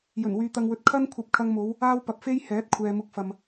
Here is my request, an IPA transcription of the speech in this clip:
j ɵ˨˩ n w yː˨ t̪ ɐ˨ ŋ w ɵ˨ t̚ kʰ ɐ˥ n kʷʰ ɐ˧ p̚ kʰ ɐ˧ ŋ m o˨˧ w | aː˥ w p ɐ˧ p̚ f e˥ j h ɛː˨˥ t̚ kʷʰ ɛː˨ m ʊ˨˥ k̚ f ɐ˨ m

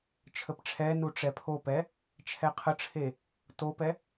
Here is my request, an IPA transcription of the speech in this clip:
t͡ʃʰ ə p ʈ͡ʂʰ ɛ n u ʈ͡ʂ ɛ pʰ o p ɛ | t͡ʃʰ ɛ qʰ ə ʈ͡ʂʰ e | t o p ɛ

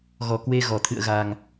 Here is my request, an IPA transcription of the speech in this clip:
ɣ ɔ˧˩ k w e˧ ɣ ɔ˧˩ t̪ʰ ɨ̰˧˨ ə̯ ɣ a˨˩ ŋ

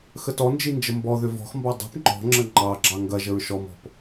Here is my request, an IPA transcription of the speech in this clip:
x ə t ɔ n d͡ʒ i n d͡ʒ ə m b ɔ ð ʏ v ɔ̤ x m b ɑ dˤ i̤ p ŋ͡ǃ ɔ̤ ŋ͡ǁ ə ŋ͡ǃ ɑ ɡ͡ǁ ɑ ŋ ɡ ɐ ʒ ə ɹ ʃ ɔ m ɔ̤ p

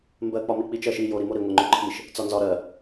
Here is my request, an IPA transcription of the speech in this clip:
m b ɜ k͡p ɒ m i k͡p i t͡ʃ ɜ ʃ i j o ɾ i m o ɾ i ŋʷ ɜ ŋ͡ǃ o ǃʰ i ʃ | t͡s ɒ n z ɒ ɾ ɜ

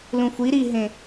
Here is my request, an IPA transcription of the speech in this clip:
l ũ xʷ i ɾ i ɦ ẽ

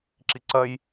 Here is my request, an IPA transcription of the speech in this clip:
ǁ i ǀ ɐ j

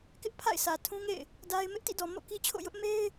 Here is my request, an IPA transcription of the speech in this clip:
k ɪ˦ ʔ pʰ a̰˦˨ ɪ̯ sʰ ä˨ tʰ ũ˦ ŋ ḛ˦˨ ɪ̯ | d a˦ ɪ̯ m ɪ˦ ʔ t ḭ˦˨ d ɔ˨ m o̰˦˨ k i˦ t͡ɕʰ o̰˦˨ j ʊ˦ ʔ m e˦ ɪ̯

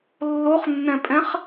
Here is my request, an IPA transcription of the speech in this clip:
lː o χ nː ɛ̃ pʼ ɛ̃ χ

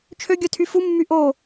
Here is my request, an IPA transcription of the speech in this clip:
t͡ʃʰ ø ɡʲ œ tʰ y f u mː y ʔ o

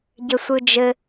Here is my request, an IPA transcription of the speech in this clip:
ɟ ɘ sʷ ɯ d͡ʒ ɘ

